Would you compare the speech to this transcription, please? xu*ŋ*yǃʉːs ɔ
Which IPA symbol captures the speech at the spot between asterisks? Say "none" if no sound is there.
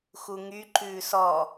ŋ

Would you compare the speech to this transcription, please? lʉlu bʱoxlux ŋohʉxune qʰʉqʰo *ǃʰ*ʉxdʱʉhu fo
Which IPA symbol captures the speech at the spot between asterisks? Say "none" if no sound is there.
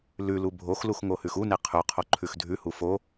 ǃʰ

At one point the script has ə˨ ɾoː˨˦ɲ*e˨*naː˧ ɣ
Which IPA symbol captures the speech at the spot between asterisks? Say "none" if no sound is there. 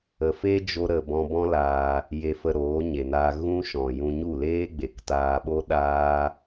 e˨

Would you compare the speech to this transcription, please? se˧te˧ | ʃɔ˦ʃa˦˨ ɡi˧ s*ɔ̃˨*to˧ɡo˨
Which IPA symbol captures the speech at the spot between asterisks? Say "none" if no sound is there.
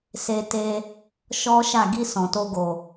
ɔ̃˨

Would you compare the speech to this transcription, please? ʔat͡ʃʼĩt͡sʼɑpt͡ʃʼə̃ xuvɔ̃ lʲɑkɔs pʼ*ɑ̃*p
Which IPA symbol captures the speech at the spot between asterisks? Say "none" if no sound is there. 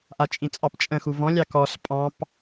ɑ̃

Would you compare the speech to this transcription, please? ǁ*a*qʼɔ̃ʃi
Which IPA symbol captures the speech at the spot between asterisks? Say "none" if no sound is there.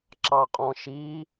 ɑ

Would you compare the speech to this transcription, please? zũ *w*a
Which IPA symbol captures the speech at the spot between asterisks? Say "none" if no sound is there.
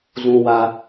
w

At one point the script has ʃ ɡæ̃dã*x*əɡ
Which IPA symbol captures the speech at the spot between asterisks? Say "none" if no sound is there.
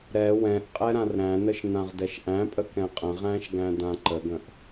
ǃ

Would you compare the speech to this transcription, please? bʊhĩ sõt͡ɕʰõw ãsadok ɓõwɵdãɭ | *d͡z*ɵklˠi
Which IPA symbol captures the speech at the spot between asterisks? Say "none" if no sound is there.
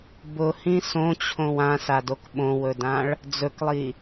d͡z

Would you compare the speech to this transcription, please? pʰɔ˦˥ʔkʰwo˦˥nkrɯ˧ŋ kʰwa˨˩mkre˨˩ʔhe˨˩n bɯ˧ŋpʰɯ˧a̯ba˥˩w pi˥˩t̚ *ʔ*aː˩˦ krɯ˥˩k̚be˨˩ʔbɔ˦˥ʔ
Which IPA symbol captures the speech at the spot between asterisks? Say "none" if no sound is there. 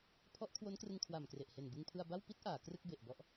ʔ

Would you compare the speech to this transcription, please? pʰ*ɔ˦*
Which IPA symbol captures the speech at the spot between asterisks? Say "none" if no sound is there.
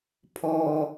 ɔ˦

